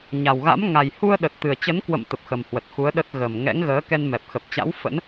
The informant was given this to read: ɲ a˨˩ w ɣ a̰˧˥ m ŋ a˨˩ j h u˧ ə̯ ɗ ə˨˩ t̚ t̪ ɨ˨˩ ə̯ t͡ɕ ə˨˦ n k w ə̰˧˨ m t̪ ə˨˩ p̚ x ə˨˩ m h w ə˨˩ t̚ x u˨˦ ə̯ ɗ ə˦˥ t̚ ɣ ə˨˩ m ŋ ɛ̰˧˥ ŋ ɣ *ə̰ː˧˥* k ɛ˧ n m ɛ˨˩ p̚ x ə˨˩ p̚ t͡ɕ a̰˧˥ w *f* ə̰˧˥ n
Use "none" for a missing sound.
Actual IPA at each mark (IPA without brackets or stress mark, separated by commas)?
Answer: əː˨˦, f